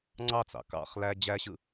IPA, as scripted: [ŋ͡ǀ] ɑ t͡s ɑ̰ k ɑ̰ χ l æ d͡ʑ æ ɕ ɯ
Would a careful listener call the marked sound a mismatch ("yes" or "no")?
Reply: no